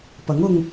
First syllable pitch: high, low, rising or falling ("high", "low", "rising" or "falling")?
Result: rising